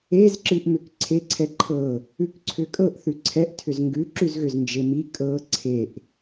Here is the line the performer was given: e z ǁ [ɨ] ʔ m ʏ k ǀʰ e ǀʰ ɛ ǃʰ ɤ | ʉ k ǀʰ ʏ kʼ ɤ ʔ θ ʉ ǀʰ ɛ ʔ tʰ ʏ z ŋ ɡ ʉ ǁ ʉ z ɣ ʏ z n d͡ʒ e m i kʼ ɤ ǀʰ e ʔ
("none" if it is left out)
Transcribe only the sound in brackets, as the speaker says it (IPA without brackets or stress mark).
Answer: ɨ